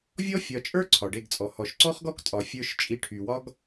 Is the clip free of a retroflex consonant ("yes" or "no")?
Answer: no